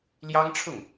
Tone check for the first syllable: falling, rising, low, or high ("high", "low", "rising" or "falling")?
high